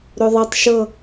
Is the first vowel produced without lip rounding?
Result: no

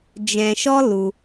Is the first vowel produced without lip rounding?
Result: yes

